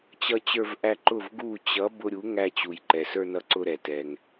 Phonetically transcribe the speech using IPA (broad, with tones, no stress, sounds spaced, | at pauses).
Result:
t͡ɕ ʌ˧ t͡ɕ ə˞˧ v ʔ æ˧ ǃ ʊ˥˩ v ɡ u˥˩ t͡ɕ ʌ˩˥ b ʊ˧ ɾʲ u˩˥ ŋ æ˧ t͡ɕ u˩ j ǃ ɛ˩ s ə˞˧ n ʌ˧ ǀ ʊ˧ ɾ ɛ˩ t ɛ˩ ŋ